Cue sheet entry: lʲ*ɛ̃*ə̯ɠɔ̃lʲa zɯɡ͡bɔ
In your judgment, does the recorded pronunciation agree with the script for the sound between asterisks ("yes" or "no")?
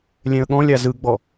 yes